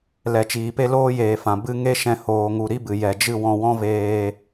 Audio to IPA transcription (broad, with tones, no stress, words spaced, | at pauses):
lɛ˨t͡ʃiː˨pe˦ loː˦jeː˨fã˨ bɨ˦ ŋe˦ʃɛ̃˧ hoː˧ŋu˧ ɾi˦bɨ˨ jɛ˨d͡ʒɨ˦˨ wɔ̃˧wɔ̃˦veː˧